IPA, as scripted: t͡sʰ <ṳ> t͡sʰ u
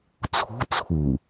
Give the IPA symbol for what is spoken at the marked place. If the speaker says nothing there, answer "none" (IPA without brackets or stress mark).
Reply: ṳ